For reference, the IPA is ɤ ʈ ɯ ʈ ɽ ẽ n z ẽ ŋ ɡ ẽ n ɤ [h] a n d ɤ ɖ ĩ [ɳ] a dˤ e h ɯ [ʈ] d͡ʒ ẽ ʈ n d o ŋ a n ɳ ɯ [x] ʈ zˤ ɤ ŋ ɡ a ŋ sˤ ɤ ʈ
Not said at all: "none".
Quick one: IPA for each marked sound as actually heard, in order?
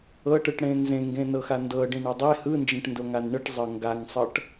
x, ɳ, n, none

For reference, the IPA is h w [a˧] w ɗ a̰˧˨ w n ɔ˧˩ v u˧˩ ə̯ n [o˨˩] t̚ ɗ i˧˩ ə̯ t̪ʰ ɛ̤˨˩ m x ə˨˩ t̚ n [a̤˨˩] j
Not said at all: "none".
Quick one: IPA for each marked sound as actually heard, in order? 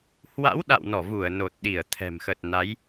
a̰˧˥, o˨˩, a˨˦

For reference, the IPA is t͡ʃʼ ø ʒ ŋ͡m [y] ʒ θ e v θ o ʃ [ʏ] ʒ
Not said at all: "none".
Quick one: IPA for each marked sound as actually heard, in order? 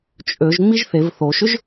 i, ʏ

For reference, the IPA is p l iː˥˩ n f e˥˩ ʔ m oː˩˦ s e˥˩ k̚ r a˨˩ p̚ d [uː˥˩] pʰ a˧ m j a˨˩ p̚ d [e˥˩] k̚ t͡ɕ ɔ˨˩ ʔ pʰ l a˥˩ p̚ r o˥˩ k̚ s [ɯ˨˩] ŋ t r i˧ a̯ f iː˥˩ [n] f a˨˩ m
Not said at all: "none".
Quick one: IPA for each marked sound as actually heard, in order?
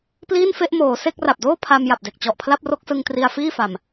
oː˥˩, e˨˩, ɯ˧, none

